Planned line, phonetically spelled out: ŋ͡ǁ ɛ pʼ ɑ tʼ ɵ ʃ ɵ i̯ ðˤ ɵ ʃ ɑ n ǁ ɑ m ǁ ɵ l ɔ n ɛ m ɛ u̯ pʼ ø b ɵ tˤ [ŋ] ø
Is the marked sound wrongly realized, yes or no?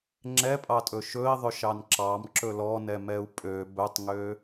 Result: no